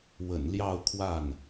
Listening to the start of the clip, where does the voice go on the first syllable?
low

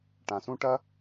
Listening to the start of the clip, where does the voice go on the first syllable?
low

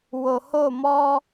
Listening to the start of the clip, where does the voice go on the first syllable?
low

